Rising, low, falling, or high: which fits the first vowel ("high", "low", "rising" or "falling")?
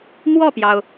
falling